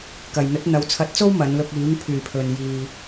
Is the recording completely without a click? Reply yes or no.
yes